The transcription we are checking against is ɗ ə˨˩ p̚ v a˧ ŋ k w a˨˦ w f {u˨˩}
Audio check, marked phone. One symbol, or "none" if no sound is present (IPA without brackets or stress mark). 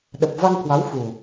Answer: u˨˩